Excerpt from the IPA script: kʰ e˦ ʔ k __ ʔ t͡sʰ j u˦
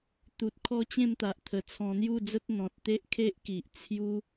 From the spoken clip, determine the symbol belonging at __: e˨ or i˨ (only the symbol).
i˨